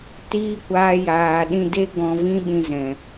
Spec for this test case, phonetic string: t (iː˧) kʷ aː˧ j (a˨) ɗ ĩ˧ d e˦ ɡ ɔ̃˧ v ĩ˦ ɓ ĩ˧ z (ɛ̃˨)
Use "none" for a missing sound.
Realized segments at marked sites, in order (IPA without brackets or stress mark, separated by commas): iː˦, aː˨, ɛ̃˨